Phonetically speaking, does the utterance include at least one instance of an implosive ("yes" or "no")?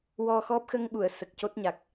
yes